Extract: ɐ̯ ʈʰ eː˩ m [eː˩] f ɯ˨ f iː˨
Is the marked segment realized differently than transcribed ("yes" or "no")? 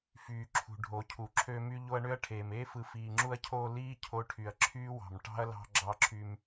yes